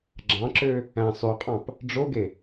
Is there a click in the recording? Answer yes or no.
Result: yes